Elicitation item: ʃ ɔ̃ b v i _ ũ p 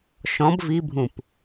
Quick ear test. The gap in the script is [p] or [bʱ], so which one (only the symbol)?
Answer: bʱ